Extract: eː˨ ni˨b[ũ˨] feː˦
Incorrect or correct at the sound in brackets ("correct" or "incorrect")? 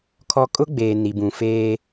correct